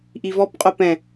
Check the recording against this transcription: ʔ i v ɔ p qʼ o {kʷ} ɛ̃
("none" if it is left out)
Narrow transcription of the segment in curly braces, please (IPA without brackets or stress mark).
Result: p